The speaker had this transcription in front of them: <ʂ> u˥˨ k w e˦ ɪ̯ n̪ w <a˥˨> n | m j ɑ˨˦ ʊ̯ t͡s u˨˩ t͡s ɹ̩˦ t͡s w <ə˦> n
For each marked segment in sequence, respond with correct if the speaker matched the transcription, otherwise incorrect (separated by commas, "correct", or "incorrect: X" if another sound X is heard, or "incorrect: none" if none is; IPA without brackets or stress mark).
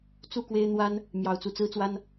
incorrect: t͡s, incorrect: a˦, incorrect: a˦